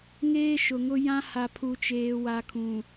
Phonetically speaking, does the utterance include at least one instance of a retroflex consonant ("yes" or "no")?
no